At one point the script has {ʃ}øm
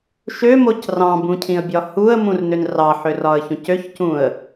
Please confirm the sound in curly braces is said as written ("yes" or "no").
yes